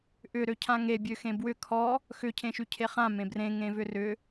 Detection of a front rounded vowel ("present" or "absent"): present